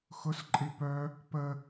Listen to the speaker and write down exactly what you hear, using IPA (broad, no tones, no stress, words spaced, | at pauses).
xʊs ǃʼipœ | pə